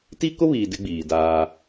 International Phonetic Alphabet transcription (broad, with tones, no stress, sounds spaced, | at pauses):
t i˦ k ʊ˦ β iː˨ d ɪ˦ ɡ͡b iː˨ d aː˦